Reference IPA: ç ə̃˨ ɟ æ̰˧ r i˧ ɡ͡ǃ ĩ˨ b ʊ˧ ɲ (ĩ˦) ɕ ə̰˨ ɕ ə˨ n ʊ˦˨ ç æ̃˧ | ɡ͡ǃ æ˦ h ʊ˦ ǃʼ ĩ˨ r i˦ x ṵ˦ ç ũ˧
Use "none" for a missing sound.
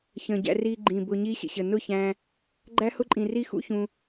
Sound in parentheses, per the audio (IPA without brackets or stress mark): i˦